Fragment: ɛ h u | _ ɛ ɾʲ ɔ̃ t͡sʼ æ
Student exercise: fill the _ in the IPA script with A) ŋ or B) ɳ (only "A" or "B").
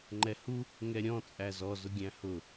A